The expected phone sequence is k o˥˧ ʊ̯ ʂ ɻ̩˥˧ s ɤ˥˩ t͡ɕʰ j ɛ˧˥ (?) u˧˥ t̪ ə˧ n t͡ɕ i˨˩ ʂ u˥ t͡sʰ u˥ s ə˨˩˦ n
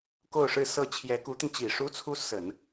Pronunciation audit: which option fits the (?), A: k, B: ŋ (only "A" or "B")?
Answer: A